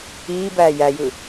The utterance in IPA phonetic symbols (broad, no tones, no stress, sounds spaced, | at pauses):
iː b æː j æ j ɯ